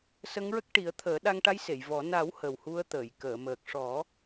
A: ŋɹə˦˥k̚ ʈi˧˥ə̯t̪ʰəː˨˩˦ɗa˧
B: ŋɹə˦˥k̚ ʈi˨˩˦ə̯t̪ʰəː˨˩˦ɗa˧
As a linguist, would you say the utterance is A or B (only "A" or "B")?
B